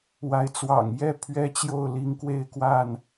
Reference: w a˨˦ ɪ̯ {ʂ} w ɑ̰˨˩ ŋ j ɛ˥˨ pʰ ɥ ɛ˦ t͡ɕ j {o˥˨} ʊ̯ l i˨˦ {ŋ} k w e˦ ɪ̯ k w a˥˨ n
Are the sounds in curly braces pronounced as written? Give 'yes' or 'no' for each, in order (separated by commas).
no, yes, yes